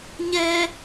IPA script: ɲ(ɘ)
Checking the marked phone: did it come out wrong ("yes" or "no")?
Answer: yes